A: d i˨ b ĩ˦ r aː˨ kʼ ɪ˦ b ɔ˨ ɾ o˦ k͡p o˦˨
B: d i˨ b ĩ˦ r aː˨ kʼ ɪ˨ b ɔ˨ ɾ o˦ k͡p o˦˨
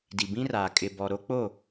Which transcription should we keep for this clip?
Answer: B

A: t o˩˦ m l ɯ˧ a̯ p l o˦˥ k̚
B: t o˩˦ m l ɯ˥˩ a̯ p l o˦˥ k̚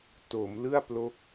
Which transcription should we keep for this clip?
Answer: B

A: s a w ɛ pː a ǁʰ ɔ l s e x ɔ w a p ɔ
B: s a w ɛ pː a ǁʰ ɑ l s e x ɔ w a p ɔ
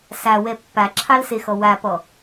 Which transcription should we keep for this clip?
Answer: B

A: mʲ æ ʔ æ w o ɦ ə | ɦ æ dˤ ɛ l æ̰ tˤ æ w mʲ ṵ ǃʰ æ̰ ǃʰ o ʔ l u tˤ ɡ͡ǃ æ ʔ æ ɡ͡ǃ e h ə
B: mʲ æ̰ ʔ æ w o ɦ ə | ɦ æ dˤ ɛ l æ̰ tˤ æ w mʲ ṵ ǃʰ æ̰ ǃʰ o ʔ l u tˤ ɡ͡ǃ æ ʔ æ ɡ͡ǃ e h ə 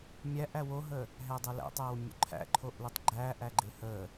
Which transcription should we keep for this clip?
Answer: A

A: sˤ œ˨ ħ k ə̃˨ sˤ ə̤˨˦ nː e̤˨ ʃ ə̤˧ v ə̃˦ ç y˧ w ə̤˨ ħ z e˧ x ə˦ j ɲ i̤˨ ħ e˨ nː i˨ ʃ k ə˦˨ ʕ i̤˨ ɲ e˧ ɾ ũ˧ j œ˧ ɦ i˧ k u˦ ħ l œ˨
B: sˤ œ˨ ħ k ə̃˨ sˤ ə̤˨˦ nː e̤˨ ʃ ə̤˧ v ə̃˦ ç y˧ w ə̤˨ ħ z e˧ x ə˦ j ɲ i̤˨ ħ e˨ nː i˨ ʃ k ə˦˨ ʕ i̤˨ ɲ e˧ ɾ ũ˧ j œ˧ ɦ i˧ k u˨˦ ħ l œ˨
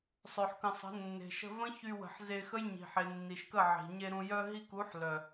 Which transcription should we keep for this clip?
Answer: B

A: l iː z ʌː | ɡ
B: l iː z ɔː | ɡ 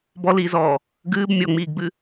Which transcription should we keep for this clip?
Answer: B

